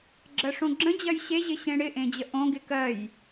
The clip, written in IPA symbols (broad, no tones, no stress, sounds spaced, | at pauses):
ɡ͡ǁ ɜ ʂ õ ɡ͡ǁ ə̃ d͡ʑ ɜ j ɕ e ʑ ɪ ɕ ẽ ɽ ɪ ʔ ẽ d͡ʑ ə ʔ õ ɡ ɪ k ɜ j